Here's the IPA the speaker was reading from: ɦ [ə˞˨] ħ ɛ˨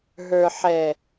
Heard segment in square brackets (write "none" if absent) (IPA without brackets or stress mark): ə˞˨